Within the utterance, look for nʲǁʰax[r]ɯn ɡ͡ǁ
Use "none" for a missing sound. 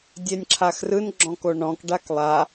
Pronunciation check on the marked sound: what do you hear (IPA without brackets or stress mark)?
r